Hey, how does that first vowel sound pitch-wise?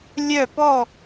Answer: falling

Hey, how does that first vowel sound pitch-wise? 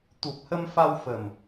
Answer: low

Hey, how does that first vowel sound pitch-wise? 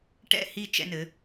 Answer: falling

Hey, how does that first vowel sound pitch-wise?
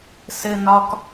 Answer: low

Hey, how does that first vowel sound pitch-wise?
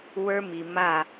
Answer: high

